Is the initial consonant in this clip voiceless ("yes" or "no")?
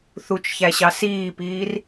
yes